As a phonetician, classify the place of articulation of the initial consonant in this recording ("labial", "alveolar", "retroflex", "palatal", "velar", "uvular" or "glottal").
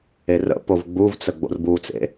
alveolar